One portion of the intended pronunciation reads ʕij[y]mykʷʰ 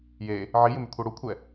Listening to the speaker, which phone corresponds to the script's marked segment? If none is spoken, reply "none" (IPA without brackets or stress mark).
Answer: ɪ